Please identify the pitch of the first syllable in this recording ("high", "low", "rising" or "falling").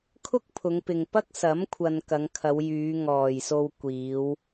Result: high